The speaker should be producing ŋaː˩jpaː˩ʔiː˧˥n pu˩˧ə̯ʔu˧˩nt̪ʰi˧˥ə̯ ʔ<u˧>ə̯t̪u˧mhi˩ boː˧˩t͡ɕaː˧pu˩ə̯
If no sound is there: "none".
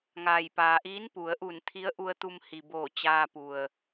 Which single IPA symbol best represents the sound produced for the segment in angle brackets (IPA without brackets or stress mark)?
u˧